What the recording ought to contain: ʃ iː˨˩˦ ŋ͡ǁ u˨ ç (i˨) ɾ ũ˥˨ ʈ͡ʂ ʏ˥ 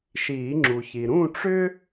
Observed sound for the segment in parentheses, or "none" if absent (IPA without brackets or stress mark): i˨